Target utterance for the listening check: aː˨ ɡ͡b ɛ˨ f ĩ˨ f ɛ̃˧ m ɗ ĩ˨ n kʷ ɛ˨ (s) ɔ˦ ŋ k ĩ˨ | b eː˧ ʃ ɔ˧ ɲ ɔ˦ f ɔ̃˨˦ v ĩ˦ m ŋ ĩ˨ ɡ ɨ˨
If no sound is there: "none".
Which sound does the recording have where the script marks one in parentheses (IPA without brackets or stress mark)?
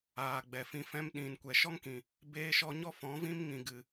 ʃ